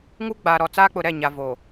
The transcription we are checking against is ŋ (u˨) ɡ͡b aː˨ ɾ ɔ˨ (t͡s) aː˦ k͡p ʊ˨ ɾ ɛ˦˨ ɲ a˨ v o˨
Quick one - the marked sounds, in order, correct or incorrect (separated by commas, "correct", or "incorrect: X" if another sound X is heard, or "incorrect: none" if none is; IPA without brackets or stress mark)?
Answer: incorrect: u˦, correct